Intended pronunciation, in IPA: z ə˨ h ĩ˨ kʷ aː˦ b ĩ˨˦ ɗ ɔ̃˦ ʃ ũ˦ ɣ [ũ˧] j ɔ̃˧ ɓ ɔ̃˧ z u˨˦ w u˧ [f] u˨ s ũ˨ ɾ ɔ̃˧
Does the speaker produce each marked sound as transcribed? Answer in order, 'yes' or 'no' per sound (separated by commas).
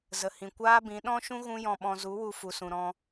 no, yes